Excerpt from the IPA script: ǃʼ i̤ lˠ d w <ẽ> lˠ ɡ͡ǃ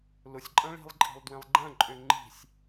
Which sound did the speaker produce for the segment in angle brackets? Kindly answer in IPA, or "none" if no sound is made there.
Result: ẽ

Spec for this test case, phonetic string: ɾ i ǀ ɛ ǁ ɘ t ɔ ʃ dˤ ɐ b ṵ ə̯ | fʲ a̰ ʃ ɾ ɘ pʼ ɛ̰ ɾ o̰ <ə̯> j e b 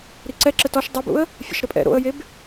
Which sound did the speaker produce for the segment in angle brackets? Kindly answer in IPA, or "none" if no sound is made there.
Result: ə̯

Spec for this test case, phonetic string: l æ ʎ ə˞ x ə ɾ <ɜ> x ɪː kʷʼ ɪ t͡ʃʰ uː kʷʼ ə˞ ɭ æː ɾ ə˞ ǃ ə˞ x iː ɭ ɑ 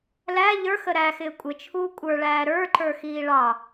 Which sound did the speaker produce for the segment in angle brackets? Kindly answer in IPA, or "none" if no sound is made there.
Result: æ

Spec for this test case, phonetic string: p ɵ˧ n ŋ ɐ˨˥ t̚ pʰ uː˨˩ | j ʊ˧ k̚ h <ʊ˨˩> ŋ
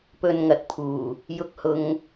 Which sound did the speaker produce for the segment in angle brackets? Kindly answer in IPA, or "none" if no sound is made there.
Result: ʊ˨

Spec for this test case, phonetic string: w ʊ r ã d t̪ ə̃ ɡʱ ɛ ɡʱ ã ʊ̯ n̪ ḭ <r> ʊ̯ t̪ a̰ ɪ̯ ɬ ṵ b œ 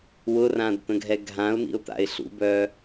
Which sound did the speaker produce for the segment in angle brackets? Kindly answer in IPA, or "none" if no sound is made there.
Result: none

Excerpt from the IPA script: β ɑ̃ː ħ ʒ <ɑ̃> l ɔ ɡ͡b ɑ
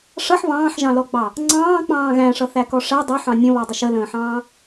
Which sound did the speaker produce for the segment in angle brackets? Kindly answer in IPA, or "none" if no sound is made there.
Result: ɑ̃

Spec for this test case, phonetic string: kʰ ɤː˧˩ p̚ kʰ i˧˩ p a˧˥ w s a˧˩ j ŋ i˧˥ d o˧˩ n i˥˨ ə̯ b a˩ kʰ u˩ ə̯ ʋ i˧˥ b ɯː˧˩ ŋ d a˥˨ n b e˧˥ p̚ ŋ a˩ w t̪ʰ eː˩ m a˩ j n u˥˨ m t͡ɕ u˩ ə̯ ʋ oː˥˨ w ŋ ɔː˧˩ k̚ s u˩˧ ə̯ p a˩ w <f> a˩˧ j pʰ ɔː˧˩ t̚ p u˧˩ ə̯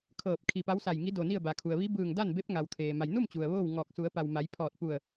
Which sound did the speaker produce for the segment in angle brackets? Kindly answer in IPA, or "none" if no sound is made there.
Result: m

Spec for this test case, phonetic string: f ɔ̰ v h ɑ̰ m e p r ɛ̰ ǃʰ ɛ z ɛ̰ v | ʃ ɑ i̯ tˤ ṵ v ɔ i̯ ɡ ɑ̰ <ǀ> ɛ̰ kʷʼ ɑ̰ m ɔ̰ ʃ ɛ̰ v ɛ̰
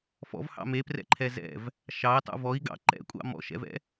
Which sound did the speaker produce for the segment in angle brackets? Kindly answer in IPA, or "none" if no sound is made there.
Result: ǃ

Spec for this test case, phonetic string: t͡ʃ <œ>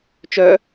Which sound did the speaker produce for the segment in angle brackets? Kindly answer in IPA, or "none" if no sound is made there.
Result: œ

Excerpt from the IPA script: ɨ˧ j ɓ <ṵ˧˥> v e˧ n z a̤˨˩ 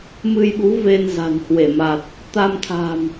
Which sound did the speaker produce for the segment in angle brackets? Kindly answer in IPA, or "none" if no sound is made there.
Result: u˨˦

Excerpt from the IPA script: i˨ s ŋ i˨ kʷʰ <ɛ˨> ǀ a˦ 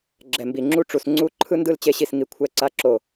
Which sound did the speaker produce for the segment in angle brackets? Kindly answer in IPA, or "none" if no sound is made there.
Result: ɛ˦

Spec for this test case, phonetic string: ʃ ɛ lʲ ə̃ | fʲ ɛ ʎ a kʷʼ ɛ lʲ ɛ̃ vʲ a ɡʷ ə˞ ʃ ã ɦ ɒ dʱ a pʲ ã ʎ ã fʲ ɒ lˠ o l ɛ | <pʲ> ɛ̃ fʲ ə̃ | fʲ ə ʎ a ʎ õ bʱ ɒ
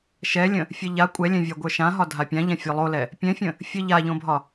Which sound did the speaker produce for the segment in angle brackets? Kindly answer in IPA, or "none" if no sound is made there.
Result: pʲ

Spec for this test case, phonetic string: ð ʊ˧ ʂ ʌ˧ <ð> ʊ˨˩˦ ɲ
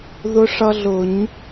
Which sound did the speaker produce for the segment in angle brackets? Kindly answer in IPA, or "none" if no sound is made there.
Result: ɮ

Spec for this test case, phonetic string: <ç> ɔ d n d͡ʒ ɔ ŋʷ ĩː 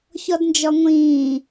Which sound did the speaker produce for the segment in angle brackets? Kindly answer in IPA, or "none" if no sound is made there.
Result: ç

